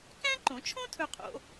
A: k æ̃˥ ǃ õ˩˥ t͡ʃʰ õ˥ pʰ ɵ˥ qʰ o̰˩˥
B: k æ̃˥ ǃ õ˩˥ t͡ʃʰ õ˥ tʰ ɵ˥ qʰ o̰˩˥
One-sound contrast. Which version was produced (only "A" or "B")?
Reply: B